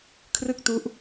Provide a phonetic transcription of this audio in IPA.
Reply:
kʰ r ɯ˥˩ k̚ t u˦˥ ʔ

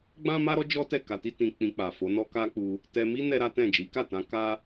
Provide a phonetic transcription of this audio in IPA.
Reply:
ɡ͡b ã˦ m a˦ ɾ ɔ˦ d͡ʒ ɔ˦ t ɛ˦˨ k a˧ t i˦ t ĩ˧ k͡p ĩ˧ k͡p a˨ f o˨˦ n ɔ˦ k a˦ k͡p u˧ | t ɛ˧ m i˦ n ɛ˦ ɾ a˦ t ɛ̃˦˨ d͡ʒ i˨˦ k a˦˨ t ã˧ k a˦

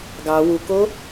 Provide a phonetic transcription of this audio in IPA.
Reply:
ɡ ɑ w u k o

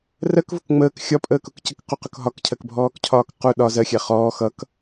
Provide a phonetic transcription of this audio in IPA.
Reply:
r ɜ k v ʊ k ŋ͡m əː k xʲ ɒ pʼ əː k ʊ k c ə k q u q ʊ k ɦ ɒ k cʰ ɜ k bʱ ɔː k cʰ ɒː k q u ɗ ɒ z ɜ xʲ æ χ ɔː x ʌ k

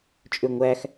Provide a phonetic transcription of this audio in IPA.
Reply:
t͡ʃʼ ø ŋʷ æ x

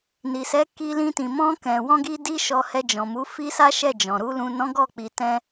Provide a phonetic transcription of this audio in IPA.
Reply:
n i˨ s ɛ˨˦ k i˧ l ĩ˧ t ĩ˨ m ɔ̃˧ k ɛ̃˨ w ɔ̃˧ ɡ i˧ d i˧ ʃ ɔ˧ h ɛ˧ d͡ʒ ɔ̃˨ m u˨˦ f i˦ s a˦ ʃ ɛ˦˨ d͡ʒ ɔ̃˨ ɾ u˧ l ũ˨ n ɔ̃˨˦ ɡ ɔ˦˨ k͡p i˨ t ɛ̃˧

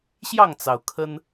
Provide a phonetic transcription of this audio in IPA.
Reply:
ɕ j ɑ˥˨ ŋ t͡s ɑ˩ ʊ̯ kʰ ə˦ n

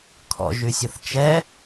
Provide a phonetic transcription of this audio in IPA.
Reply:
kʰ ɔ̰ ʒ y sʲ ə θ t͡ʃ ɛ

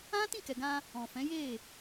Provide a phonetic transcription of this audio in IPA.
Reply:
ã˦ t ĩ˦˨ k ɛ˨ ɡ ã˧ | ɔ̃˨ f ɛ̃˨˦ j e˦˨

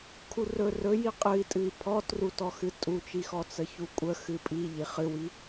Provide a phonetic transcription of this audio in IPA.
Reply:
kʰ u r ɵ r ɵ j i qʼ ɨ i̯ tʼ ɨ i̯ pʰ ɔ t r u t ɔ x ɨ tʼ u t͡ʃ i x ɔ t͡s ə ç u kʷʼ ə x ɨ pʼ i ʎ i χ ɨ w i

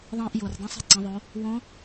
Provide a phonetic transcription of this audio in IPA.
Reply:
ðˤ ĩː˧ ʔ j o˩ r dˤ ĩ˧˥ sˤ i̤˩ ǀ ɐ̃˩˧ ðˤ o˩˧ | w õ˧˥

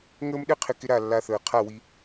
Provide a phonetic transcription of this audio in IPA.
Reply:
ŋ əː˦ m ɗ ɘ˦ qʰ ɪ˧ k ɪ˧ ɾ a˦˨ lː a˧ θ əː˨ qʰ a˦˨ w i˧

